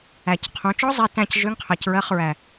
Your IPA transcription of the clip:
æ˨˩ c qʰ ũ˩˧ t͡ʃ ɔ˦˥ zˤ ɛ˧˥˧ t æ̃˦˨ c ʒ ø˧˥˧ ŋ qʰ ɜ˨˩ c ɹ ɜ˧˥˧ χ ɹ æ˨˩

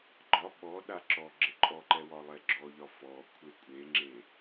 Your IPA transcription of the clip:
ɡ͡ǃ ɒ ɓ ɔ ɗ a ǁ ɔ ɡ͡ǁ ɪ ǃʼ ɔ ǃ ɛ w ɒ lˠ ɛ ɡ͡ǁ ɔ ʎ ɒ f ɔ kʷʰ e kʷʼ e ŋ͡ǁ e

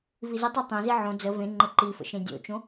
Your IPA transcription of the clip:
v i z ə tˤ e tˤ ɛ̃ z i ʕ õ d͡z ə v ẽ ŋ͡ǃ ə ǃ i f ə̰ ʃ ẽ dʲ o̰ t͡ʃ õ

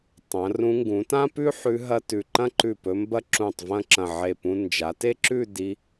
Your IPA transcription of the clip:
tˤ ɐ̃˩˧ r ũ˧ ŋ ɡ ũ˩˧ t ã˥ p ʉ˥ ħ ʉ˧ ɦ ɐ˥ t ʉ˧˩ ǃ ɐ̃˥˧ ǃ ʉ˧˩ p ɵ˧ m b ɐ˥ ǁ ũ˧˩ tˤ v ɐ̃˥˧ ǁ ɐ̃˧˩ ʕ e˧˩ p ũ˧ n d͡ʒ a˩˧ t e˥ ǁ ʉ˥˧ d i˧

